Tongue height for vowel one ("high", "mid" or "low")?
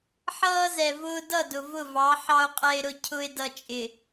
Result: mid